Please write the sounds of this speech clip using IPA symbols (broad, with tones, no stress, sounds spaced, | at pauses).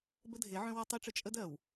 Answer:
b ə˦ dʱ e˨˦ ʕ œ̃˦ w ɔ˦ tˤ i˦ ʈ͡ʂ ə˦ t͡ʃʼ ə˦ d ɜ˨ w